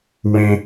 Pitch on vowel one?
low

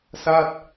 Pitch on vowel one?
falling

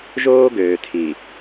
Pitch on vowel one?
high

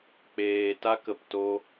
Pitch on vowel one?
low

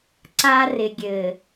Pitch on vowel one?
high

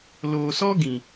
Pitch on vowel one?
low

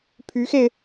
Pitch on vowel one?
rising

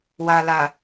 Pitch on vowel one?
low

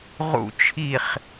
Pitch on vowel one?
falling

